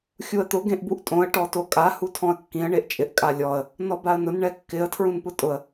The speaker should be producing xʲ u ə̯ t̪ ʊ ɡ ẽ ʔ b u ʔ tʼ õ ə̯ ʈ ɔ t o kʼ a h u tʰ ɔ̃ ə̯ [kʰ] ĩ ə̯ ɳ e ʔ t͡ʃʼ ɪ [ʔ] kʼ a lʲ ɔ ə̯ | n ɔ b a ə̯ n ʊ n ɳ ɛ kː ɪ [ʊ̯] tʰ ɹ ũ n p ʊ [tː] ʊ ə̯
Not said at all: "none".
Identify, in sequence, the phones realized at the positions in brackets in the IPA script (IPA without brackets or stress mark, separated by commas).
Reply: kː, ʔ, ə̯, tʼ